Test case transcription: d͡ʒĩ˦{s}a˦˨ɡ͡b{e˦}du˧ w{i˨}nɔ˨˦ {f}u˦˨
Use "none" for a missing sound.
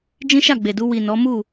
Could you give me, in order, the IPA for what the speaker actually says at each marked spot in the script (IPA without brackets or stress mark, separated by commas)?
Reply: ʃ, e˨, i˨, m